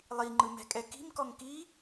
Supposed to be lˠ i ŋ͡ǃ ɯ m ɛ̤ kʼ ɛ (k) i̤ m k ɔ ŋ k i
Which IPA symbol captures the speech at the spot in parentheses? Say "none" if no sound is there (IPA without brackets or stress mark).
k